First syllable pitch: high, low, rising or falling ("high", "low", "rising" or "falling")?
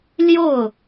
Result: falling